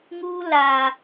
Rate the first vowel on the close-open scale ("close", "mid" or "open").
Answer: close